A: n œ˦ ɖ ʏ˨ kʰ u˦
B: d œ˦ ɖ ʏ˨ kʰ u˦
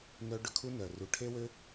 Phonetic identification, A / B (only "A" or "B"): A